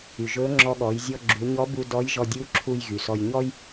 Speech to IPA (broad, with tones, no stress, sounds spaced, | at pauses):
y˩ ʒ ɵ˧˥ ŋ͡ǁ ɔ˧ ɠ ɔ˩˧ j zʲ ɔ˧ ɡ͡ǁ u˩˧ ɲ ɔ˧˥ b u˧ d ɔ˧˥ j ʒ ɔ˧ dʲ u˧˥ ǁʰ u˧ j ɣ y˩ s ɔ˧ j ɲ ɔ˥ j